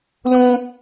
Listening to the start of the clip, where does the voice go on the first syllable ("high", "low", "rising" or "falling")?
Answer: high